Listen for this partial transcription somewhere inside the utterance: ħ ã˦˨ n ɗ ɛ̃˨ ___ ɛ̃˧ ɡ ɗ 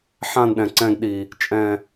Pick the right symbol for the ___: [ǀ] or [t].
ǀ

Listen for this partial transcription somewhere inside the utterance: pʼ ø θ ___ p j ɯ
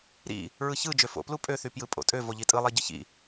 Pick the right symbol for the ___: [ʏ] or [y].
y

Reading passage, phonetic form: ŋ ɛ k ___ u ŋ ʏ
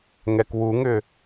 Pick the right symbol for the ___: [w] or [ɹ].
w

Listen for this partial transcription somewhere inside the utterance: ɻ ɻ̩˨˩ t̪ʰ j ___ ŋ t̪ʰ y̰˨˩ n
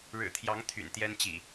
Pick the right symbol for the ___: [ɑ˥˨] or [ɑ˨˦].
ɑ˨˦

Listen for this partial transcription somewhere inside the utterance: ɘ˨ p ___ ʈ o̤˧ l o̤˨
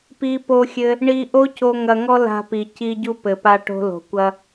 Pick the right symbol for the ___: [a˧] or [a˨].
a˧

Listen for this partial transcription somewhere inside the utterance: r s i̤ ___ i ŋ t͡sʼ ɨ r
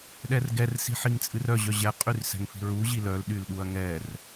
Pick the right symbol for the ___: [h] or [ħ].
ħ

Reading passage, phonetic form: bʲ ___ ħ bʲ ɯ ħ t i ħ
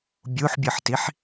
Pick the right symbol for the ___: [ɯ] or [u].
u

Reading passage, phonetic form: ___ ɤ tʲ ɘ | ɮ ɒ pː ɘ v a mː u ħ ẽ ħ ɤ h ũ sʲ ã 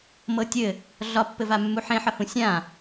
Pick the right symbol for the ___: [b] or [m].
m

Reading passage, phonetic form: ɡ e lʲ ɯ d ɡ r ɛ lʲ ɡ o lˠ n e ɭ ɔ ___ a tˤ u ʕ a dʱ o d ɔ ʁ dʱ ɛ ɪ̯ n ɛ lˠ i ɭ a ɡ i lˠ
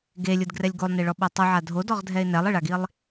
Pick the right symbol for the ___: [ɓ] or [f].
ɓ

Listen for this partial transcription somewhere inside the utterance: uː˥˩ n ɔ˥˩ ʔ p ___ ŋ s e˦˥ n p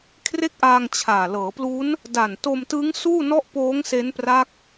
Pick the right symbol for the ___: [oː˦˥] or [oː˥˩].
oː˦˥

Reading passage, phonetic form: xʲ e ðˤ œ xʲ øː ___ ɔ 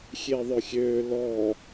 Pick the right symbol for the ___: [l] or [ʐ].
l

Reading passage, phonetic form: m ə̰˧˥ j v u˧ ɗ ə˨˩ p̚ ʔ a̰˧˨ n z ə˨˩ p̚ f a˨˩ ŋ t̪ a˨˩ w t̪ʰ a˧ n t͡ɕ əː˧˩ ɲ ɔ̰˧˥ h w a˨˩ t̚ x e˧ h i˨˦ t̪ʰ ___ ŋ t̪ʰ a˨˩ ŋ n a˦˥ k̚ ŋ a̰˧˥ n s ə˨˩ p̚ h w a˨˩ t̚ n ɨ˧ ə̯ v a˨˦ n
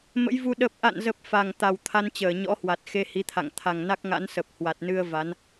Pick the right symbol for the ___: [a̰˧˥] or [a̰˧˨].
a̰˧˨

